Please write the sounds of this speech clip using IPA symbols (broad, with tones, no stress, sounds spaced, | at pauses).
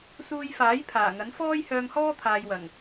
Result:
s uː˧ j f aː˨˥ j pʰ aː˨˩ ŋ ɐ˨˥ n f ɔː˥ j h œː˧ ŋ h ɔː˥ t̪ʰ aː˨ j w ɐ˨˩ ŋ